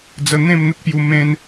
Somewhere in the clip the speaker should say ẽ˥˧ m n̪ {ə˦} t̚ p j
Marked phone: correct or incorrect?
correct